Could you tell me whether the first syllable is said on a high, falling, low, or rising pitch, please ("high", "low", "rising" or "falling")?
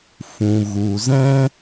low